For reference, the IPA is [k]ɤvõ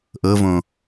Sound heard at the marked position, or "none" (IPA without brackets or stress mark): ʔ